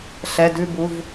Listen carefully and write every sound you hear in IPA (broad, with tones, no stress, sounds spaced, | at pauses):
ɬ ɛ˩˧˩ d ʉ˦˨ b u˩˧˩ v